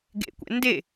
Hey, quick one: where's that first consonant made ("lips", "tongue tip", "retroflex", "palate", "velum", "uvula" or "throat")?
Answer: velum